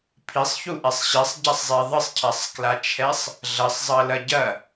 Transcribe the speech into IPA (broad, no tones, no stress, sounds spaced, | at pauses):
pʰ i sˤ ç u ʔ ɛ sˤ ɕ ɛ sˤ ɟ a sˤ zˤ e ðˤ ɨ sˤ cʰ a sˤ k l a t͡ʃʰ ɛ sˤ | ɮ ɐ sˤ zˤ ɐ l ɐ ɟ ɐ